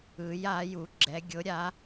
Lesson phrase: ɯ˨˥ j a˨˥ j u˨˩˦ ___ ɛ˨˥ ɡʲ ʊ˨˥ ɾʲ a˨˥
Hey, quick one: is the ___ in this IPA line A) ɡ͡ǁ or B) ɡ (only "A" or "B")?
A